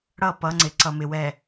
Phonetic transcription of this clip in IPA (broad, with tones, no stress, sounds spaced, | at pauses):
ɽ ʌ˦˨ p ʌ˨˦ ŋ͡ǀ ɪ˨ ǀ ʌ˨ m ɪ˨ w ɛ˨